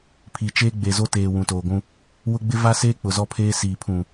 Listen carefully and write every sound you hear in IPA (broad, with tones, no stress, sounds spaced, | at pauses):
pʰ i˨ t͡ʃ eː˦ ɡ͡b e˨ z o˦ t eː˨ w ũ˨ t oː˨ ɡʷ ũ˦ | w ʊ˦ ɡ͡b ɪ˦ v a˦ s eː˦ k͡p ʊ˨ z ɔ˦ pʰ eː˦ s iː˨ pʰ ũ˨